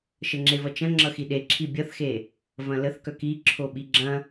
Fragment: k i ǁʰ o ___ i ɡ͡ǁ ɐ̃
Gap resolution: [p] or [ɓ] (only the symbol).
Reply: ɓ